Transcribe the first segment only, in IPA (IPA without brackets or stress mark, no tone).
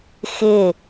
x